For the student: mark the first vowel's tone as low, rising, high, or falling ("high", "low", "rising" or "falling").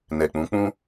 low